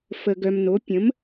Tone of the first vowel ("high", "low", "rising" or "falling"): low